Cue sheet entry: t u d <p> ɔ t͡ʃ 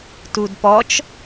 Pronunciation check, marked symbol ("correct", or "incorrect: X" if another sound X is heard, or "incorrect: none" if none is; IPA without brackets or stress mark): correct